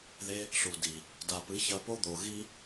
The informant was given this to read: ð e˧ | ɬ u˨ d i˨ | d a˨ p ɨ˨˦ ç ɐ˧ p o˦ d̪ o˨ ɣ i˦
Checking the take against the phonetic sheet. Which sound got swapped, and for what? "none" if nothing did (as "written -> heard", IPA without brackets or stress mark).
none